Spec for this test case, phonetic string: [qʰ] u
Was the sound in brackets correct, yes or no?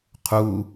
yes